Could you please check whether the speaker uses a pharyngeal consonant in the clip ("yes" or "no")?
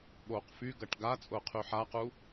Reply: yes